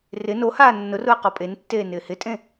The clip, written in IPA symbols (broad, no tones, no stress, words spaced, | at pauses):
rɪ nohaː nːʊrʊə̯ qɔpʼentːeː nɪːhɪtʼẽ